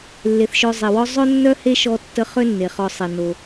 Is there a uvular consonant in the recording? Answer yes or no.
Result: yes